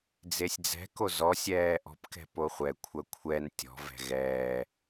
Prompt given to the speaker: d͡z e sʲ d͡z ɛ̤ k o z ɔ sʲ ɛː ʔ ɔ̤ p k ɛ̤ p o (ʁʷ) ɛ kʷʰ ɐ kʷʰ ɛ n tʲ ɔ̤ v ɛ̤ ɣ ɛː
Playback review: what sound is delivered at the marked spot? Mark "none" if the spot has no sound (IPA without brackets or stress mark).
χʷ